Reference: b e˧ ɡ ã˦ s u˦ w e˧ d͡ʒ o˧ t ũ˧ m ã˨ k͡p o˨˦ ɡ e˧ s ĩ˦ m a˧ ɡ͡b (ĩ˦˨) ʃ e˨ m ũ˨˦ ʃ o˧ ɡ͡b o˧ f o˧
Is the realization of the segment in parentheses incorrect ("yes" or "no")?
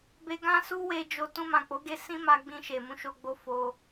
yes